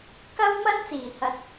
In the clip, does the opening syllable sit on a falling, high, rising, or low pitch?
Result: high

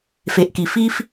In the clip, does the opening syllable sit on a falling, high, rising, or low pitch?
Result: low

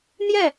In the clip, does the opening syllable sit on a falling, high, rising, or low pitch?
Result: falling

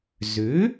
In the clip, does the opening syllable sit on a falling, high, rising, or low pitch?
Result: rising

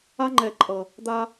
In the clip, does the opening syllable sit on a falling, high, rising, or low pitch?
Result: high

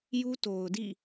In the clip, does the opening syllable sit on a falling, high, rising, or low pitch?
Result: high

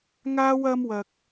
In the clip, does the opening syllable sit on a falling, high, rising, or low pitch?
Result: high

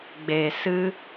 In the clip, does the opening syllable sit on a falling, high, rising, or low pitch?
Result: low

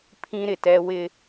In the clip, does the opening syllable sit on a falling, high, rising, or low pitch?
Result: high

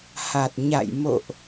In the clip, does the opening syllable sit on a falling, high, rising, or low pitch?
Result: low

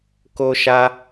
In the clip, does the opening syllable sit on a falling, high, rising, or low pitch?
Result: high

